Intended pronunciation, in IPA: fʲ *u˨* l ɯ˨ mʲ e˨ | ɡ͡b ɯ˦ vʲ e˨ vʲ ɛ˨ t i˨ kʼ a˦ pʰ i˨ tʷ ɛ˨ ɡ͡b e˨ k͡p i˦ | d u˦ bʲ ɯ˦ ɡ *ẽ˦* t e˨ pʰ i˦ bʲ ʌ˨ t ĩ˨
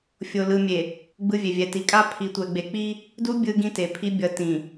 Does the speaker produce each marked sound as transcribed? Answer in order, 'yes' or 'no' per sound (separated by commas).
no, no